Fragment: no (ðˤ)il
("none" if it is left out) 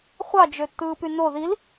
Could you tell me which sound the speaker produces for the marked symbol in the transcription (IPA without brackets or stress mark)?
ð